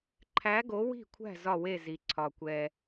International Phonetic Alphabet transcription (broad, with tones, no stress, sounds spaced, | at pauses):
ǃʰ æ˨˥ ɡ o˨˥ w i̤˥˩ kʷʰ æ̤˥˩ z ɒ˧˩ w e˧˩ z i˩ ǀʰ ɒ˩ kʷ ɛ˩